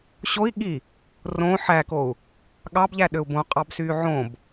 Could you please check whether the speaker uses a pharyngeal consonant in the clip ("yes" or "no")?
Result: yes